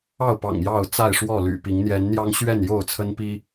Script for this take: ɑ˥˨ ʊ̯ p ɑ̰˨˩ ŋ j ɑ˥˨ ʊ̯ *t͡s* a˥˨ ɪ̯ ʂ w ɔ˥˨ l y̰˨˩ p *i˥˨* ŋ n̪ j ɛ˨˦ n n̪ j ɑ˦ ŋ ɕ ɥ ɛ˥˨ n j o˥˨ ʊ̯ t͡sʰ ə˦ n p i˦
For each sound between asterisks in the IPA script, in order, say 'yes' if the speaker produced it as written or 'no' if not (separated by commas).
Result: yes, no